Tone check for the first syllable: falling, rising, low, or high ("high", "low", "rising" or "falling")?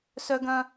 high